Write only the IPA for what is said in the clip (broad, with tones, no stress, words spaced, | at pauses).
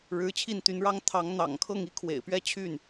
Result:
ɻɻ̩˧˥t͡ɕʰi˥˩nt̪y˧˥nɻɑ˥ŋ t̪ʰɑ˧˥ŋ n̪ɑ̰˨˩ŋkʰɤ˥˩ŋ i˥kʰwḛ˨˩ɪ̯pɥɛ˥˧ t͡ɕʰy˥˩n